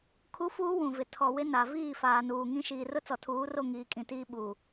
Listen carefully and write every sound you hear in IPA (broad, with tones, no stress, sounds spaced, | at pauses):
kʰ u˦ f uː˦ w ũ˨ v ɪ˨ tʰ ɔ˨ w ɪ˦ n a˨ v iː˦˨ f aː˨ n uː˨ ŋ ĩ˦ ʃ iː˨ r ʊ˦ t͡s ɔ˨ tʰ uː˨˦ r o˦˨ ŋ iː˨ kʼ ĩ˨ t iː˦ ɓ u˨